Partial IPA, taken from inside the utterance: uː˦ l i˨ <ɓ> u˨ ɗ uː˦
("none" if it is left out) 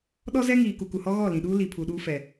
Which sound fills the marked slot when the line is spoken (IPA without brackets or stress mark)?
pʰ